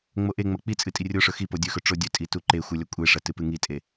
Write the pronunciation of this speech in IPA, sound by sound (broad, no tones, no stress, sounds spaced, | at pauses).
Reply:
ŋ͡m o ʔ e ŋ͡m ɐ k͡p i t͡sʼ ɨ tʼ i rʲ o ʂ ɵ x i p o dʲ ɵ x ɵ ʈ͡ʂ o dʲ ɵ tʼ i t u ǃ e xʷ ɨ lʲ ɐ kʷʼ e ʂ ɐ t ɨ p ɨ ŋ i tʼ e